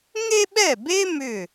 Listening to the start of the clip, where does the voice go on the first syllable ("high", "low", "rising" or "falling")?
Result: high